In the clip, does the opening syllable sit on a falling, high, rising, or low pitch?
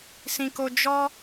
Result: low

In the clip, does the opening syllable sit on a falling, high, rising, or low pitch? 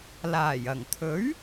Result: low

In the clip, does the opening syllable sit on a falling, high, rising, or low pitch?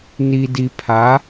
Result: low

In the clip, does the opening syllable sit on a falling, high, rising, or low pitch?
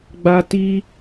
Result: high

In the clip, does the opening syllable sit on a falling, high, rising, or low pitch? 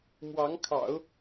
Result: rising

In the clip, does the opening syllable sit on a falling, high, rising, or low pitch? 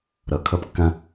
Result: low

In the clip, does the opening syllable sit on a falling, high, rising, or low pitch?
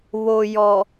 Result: low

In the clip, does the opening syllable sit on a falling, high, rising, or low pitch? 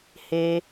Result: high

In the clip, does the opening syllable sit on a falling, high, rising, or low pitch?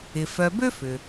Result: low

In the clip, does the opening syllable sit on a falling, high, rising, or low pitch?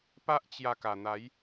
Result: high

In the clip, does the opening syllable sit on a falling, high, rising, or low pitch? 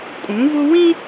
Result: rising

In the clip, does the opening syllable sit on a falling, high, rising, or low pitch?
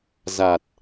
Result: low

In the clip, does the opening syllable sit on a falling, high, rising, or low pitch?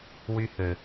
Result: high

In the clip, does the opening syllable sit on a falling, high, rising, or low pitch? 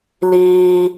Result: low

